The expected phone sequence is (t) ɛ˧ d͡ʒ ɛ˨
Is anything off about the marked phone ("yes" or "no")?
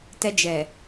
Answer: no